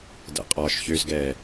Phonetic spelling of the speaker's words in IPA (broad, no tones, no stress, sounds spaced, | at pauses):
d ɛ̰ qʼ ɒː ʃ ç ø z ɡ ɛː